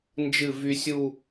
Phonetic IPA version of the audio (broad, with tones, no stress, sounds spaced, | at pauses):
n d͡ʒ ɨ˧˩ v y˧ sʲ u˥˧